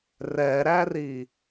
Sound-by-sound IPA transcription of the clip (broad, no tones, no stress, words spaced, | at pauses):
rɛɾæri